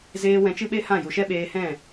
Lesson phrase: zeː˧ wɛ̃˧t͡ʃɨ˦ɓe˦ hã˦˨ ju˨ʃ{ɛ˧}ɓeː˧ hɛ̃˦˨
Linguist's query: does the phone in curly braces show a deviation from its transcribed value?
yes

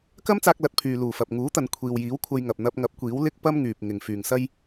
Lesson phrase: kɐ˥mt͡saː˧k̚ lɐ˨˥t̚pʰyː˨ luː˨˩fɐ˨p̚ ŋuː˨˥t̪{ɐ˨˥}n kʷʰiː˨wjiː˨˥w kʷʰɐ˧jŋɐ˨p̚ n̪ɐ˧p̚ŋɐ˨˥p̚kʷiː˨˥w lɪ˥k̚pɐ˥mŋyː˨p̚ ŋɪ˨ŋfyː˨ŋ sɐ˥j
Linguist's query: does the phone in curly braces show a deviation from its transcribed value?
yes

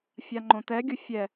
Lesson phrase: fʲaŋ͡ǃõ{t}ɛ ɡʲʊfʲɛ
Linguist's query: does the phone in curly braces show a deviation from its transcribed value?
no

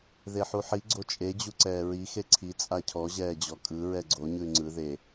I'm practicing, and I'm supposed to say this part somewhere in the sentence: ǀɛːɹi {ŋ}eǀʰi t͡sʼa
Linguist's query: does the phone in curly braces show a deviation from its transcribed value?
yes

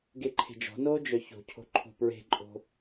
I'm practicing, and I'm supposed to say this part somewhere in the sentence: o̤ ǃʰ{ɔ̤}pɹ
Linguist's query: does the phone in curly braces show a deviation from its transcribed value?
yes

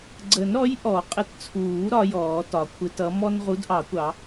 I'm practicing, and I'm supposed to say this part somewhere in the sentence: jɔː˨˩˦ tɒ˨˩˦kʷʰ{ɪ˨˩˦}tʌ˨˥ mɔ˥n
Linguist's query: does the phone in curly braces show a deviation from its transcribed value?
yes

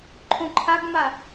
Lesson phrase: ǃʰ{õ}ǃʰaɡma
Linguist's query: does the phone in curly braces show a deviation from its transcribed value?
no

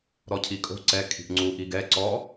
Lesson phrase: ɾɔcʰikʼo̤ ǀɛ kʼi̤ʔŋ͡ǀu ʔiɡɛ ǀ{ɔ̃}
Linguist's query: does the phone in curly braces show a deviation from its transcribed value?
yes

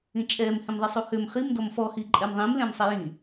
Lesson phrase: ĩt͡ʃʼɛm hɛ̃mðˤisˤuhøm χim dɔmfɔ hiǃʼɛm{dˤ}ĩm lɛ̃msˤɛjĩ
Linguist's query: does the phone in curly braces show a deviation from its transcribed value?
yes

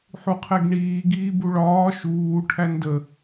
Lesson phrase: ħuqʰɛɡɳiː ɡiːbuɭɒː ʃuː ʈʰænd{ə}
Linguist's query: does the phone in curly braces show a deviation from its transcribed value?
no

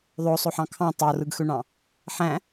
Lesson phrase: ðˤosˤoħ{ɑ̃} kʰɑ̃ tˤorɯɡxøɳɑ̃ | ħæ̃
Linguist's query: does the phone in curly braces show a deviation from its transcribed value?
no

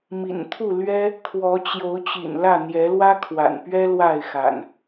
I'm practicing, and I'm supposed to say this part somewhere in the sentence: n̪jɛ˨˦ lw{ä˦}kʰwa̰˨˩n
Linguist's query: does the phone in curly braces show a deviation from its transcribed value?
no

